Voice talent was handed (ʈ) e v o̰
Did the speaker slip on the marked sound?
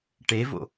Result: no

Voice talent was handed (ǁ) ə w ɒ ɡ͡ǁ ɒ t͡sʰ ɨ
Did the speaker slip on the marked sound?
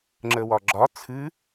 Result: yes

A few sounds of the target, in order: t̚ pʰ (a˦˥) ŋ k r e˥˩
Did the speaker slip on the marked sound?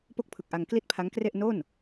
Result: no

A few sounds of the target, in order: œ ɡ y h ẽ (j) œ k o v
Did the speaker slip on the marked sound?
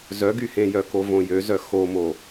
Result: no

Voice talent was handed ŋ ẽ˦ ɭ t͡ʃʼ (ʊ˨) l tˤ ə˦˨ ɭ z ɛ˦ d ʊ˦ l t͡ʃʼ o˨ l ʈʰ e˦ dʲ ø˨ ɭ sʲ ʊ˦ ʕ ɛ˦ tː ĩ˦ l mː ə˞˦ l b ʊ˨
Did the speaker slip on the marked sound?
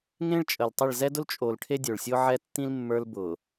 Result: yes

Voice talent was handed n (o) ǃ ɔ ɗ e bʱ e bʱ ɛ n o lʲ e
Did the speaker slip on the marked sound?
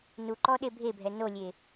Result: yes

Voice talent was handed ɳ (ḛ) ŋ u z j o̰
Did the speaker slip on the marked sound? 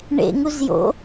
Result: no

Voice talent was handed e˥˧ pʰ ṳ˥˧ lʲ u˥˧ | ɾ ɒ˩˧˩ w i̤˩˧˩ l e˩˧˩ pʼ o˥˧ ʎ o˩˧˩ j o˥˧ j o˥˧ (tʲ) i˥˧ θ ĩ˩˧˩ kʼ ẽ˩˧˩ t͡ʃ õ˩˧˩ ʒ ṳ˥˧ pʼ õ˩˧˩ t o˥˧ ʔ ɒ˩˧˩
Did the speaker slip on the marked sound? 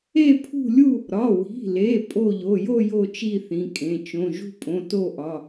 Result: yes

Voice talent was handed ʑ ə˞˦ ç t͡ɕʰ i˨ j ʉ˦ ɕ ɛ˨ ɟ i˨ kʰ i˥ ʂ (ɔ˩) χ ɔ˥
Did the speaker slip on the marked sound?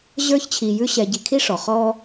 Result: no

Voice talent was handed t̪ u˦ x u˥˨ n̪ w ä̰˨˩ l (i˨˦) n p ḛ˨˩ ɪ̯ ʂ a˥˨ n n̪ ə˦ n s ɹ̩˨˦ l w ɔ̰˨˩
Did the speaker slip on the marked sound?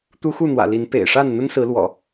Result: no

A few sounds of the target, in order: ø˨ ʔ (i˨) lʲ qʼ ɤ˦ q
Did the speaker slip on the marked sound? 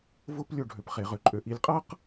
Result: no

